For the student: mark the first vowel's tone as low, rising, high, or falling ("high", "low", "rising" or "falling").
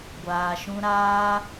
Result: low